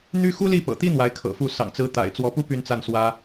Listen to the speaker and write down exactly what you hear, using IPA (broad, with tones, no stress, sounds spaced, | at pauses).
n̪ y˥ x u˥ l i˥˩ p ɤ̰˨˩ t̪ i˥ n̪ w a˧˥ ɪ̯ kʰ ɤ̰˨˩ f u˥˩ s ɑ̰˨˩ ŋ t͡s ɹ̩˧˥ t̪ a̰˨˩ ɪ̯ t͡s w ɔ˧˥ p u˥ p y˥˧ n t͡s a˥˩ n s w ä˥